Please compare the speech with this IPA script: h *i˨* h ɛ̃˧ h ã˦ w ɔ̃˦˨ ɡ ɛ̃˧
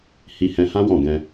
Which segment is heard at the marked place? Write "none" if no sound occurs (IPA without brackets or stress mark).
i˧